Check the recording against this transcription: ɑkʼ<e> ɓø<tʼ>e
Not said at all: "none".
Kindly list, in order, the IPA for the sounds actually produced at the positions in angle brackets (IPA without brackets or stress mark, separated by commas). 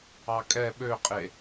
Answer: ɛ, qʼ